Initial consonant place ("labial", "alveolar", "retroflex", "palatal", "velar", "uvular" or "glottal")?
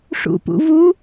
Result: retroflex